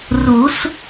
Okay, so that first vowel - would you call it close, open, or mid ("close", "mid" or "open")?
close